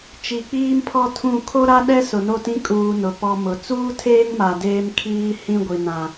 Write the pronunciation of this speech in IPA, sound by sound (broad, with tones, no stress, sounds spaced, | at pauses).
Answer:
t͡ʃ i˨ k͡p iː˦ m pʰ ɔ˦ tʰ ũ˦˨ kʰ o˦ ɾ a˦ ɗ ɛ˦ s ʊ˨ n o˦˨ t ĩ˦ kʼ uː˨ n ʊ˨ p ɔ˦ m ʊ˨ t͡s uː˦ tʰ eː˦ ŋ m a˨ d eː˦ m kʰ iː˦ h ĩ˦ ɡʷ i˨ n ã˨